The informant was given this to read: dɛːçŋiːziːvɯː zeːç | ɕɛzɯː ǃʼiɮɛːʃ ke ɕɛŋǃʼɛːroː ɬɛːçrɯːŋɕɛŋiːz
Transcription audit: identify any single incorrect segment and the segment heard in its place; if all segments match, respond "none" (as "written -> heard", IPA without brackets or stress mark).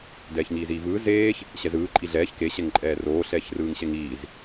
ʃ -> ç